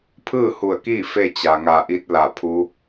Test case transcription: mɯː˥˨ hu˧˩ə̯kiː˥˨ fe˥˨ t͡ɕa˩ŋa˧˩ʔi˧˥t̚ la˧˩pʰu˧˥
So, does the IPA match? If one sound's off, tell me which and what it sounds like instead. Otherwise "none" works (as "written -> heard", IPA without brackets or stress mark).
m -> pʰ